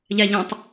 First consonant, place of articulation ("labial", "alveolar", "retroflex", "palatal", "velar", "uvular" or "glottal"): palatal